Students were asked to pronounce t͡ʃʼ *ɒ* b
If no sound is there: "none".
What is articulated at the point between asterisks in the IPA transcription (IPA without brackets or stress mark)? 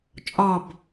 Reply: ɒ